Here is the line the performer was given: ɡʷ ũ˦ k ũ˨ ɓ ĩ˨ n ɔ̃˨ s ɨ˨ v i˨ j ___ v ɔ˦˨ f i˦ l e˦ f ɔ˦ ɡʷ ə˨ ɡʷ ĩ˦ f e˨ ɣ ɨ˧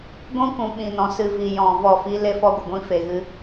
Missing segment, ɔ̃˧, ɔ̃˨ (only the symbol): ɔ̃˨